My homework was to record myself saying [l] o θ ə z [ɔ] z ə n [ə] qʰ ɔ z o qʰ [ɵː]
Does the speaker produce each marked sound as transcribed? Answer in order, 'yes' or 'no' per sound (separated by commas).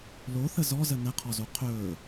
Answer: yes, yes, yes, yes